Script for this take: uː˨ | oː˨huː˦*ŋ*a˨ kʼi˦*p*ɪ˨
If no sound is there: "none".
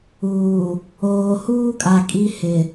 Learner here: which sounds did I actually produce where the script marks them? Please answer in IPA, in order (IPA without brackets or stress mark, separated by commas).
kʼ, h